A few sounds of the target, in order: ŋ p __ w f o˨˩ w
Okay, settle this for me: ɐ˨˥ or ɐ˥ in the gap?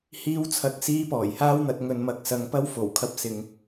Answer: ɐ˥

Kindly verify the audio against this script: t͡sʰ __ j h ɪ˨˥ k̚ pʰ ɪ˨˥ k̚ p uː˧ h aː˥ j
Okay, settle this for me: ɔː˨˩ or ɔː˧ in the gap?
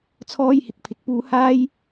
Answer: ɔː˧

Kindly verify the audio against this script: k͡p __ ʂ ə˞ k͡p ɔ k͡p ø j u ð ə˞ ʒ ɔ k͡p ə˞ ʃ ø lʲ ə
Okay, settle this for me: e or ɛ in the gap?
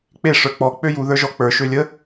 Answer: e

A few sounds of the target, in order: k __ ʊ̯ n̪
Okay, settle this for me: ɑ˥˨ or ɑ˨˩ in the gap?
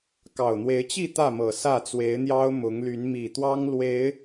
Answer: ɑ˨˩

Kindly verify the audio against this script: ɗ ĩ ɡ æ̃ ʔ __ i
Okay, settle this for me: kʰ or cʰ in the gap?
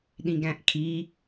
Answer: kʰ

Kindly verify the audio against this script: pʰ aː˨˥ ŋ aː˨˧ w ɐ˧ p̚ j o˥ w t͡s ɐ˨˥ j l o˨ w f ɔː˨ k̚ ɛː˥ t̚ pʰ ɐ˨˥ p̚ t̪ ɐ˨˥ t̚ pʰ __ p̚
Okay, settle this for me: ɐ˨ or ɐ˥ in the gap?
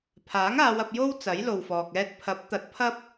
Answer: ɐ˥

